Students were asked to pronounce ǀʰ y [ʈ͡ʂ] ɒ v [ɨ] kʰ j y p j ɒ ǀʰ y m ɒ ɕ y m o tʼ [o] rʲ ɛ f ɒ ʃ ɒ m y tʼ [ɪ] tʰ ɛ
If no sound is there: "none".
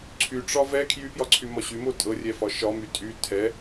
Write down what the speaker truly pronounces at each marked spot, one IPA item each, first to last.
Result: ʈ͡ʂ, ɛ, ɤ, y

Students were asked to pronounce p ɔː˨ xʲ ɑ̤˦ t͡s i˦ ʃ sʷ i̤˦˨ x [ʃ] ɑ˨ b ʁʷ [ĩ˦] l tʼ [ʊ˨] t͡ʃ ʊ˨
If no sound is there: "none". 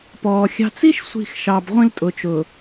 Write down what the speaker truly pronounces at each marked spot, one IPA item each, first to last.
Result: ʃ, ĩ˦, ʊ˨

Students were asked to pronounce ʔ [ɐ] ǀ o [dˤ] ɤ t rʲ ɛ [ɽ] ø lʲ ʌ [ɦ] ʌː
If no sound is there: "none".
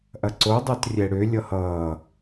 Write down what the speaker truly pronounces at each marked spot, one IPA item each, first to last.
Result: ɐ, dˤ, ɽ, h

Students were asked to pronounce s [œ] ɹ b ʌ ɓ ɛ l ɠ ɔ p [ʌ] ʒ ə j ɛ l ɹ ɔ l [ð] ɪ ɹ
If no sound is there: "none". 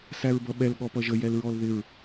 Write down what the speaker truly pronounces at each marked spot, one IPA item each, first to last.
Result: æ, ʌ, ð

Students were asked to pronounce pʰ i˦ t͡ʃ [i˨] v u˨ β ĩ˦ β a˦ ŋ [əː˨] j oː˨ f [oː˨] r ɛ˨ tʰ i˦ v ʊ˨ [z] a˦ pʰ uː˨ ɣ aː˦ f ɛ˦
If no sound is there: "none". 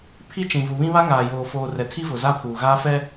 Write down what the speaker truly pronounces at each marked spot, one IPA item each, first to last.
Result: ĩ˨, aː˨, oː˨, z

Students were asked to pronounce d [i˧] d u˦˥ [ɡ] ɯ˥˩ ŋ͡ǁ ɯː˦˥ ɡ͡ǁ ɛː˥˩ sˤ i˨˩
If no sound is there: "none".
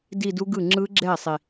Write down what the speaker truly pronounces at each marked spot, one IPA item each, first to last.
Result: i˥˧, ɡ

